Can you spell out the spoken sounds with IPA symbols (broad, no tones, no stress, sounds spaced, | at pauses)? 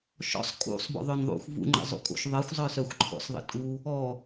ʃ ɔ̰ sˤ kʼ ṵ sˤ b ɔ̰ ðˤ œ n ðˤ ṵ xʷ v ṵ ŋ͡ǃ ə̰ zˤ ṵ kʼ o̰ ʃ ðˤ ə xʷ zˤ œ s œ xʷ ǃʰ ɔ̰ s ðˤ ə̰ tʼ u | ɔ